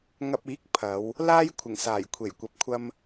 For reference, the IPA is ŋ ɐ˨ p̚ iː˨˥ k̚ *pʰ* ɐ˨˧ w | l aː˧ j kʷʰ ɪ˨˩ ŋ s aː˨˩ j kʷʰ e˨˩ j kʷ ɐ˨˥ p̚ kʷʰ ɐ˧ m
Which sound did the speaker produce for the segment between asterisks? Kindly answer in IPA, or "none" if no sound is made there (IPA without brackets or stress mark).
pʰ